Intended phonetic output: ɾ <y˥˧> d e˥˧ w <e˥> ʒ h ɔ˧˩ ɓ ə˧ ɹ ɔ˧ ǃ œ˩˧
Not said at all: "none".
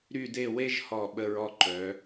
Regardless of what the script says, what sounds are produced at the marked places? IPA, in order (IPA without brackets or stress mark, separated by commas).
y˥˧, e˥